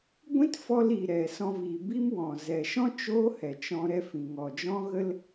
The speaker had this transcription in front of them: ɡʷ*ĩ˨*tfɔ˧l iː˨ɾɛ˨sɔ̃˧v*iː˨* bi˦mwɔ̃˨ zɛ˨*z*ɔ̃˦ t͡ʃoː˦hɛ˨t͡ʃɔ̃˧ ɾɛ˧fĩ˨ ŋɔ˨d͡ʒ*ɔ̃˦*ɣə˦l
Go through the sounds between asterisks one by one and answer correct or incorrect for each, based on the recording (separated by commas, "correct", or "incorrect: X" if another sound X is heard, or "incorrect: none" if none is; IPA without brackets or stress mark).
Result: incorrect: ĩ˦, correct, incorrect: ʃ, correct